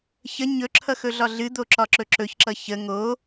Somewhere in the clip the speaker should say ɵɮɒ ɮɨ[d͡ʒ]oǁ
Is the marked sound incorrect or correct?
incorrect